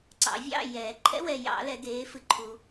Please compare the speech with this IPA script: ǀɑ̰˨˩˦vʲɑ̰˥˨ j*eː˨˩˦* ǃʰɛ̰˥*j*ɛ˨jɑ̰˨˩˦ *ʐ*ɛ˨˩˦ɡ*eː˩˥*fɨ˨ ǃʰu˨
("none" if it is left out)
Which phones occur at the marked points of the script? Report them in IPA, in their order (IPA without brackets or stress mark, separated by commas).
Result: ɛː˨˩˦, w, l, eː˩˥